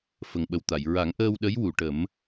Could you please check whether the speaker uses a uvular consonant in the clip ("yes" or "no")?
no